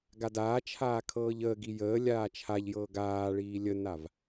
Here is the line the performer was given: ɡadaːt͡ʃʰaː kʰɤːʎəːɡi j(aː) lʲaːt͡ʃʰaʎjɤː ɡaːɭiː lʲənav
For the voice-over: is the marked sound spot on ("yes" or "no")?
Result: no